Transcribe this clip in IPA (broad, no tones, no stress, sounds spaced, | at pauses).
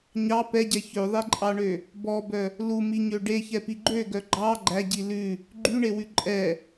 ɲ ɑ p ɛ ɟ ɛ ç ø ðˤ e ǃʼ ɑ ɳ ø | b ɔ b œ | l u m i ɲ ø ɖ e ç ɛ p i ɡ͡ǃ ø ɡ œ ɡ͡ǃ ɑ ɡ͡ǃ æ ɟ i l ʉ | ɡ͡ǃ y ɳ e w ʉ ǃʼ ɛ